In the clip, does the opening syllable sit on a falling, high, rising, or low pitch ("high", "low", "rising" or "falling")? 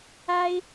high